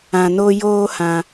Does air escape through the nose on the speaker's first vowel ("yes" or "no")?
yes